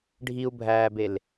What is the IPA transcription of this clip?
ɖʱ i u̯ bʱ æː b e l

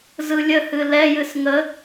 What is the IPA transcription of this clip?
z ɯ lʲ ə h ɨ l ɛ j ɨ s ŋ ə

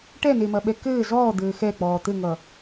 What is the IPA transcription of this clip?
ʈ ɛ n e m ɐ ɓ ɛ k ɘː z ɔː d̪ ɘː x ɛ k͡p ɔː t̪ ɘ ŋ ʌ

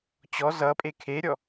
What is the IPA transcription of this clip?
t͡ɕ ɔ z ʌ pʼ e kʰ e ɾʲ ɔ

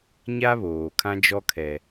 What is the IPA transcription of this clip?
ɲ a˦ β oː˨ kʰ ã˦ d͡ʒ ɔ˦ kʰ ɛ˦

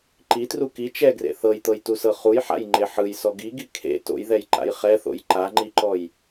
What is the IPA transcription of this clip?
ǃ i t r u k i t͡ʃ ɛ ɡ r ḛ θ ɤ j t̪ ɤ j t u s ɤ χ u j ħ a̰ j ŋ͡ǃ e ħ ɯ j s ɔ ɡ i ɡ i kʰ ḛ t o̰ j ð ɛ j ǃ a̰ j χ ɛ θ o̰ j ǃ a ŋ͡ǃ i ǃ ɔ j

